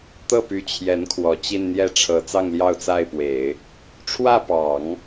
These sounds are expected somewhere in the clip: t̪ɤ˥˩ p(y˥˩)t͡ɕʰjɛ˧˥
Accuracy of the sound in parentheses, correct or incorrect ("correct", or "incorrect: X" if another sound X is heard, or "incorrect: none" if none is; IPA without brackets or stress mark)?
incorrect: y˧˥